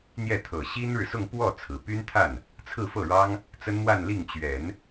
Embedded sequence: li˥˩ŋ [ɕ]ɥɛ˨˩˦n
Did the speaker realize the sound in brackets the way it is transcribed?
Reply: no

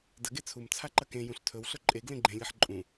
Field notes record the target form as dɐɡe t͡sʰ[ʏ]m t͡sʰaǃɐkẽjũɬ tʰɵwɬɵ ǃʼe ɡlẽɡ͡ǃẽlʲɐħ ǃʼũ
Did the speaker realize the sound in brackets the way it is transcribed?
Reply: no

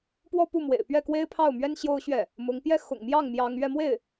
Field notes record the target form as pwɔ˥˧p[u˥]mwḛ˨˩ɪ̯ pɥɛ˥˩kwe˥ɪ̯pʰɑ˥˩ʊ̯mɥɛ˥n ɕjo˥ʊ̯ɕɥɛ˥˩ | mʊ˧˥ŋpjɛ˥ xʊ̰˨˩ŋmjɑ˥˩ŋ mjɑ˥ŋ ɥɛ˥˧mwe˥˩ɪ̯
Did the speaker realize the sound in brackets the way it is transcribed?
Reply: no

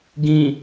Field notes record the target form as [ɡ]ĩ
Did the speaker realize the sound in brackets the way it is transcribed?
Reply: yes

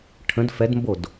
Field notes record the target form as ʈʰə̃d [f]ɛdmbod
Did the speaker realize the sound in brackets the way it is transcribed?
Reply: yes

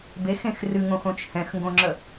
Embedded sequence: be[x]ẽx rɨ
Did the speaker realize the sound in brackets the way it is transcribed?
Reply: yes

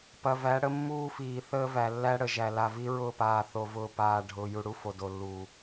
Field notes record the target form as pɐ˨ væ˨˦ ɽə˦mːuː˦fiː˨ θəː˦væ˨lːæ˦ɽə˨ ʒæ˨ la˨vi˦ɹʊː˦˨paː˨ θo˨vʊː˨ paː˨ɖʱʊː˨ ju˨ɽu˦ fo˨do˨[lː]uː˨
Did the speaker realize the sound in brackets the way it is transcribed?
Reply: yes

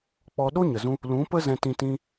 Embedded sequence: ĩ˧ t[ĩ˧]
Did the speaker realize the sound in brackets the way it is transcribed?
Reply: yes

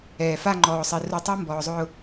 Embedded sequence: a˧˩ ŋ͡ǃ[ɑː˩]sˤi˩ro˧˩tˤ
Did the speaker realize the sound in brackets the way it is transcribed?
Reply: no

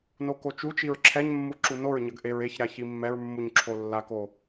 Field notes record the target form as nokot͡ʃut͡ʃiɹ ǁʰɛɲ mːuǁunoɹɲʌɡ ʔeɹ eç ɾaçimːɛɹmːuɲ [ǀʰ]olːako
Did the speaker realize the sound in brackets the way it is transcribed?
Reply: no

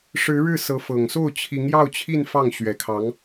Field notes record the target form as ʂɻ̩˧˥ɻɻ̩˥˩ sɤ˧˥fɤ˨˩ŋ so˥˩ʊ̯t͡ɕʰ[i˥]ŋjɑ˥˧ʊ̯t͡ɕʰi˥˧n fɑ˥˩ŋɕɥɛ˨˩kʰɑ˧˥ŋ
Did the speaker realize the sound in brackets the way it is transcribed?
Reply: no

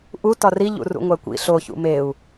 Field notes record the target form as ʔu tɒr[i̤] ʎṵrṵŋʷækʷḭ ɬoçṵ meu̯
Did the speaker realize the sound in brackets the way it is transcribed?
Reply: no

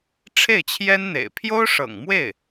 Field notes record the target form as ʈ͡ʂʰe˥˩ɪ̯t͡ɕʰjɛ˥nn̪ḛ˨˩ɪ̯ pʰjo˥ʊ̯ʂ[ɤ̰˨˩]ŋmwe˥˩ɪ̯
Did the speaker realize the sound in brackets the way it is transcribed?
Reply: yes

